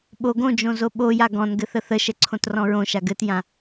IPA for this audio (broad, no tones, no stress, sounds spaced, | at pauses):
ɓ o ɡ õ d͡ʒ õ z o ɓ o j a ɡ ɔ̃ n ɡ ɘ θ ə θ ə ʃ ɛ ǀʰ õ t r ɔ̃ ɹ õ ʃ a ɡ ɘ t j ã